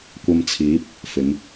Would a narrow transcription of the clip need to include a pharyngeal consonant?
no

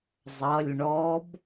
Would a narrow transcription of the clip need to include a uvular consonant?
no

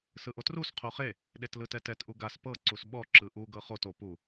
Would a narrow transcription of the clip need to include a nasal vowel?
no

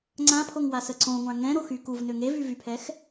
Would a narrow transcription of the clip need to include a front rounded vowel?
yes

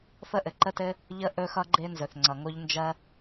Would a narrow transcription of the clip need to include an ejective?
no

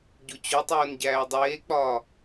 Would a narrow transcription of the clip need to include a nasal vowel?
no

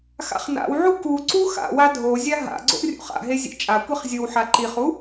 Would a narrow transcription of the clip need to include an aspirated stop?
no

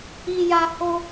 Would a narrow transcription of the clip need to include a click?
no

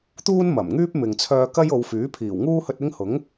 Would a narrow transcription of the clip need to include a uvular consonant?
no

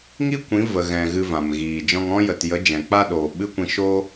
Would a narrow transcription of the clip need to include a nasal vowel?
yes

